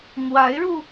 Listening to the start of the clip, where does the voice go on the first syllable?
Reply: rising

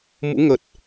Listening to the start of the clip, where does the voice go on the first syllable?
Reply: rising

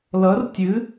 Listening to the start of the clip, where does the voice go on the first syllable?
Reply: rising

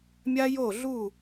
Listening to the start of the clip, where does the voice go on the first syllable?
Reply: high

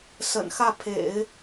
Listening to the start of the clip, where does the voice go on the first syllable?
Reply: low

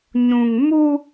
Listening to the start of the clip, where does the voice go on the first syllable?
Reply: low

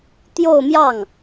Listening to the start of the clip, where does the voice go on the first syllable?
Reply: falling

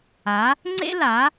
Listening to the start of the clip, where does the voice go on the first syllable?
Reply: rising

